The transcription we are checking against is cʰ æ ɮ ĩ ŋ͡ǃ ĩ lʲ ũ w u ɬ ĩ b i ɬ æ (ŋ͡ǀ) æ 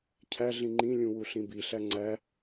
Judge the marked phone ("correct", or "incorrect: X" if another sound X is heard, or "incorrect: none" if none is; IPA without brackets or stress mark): correct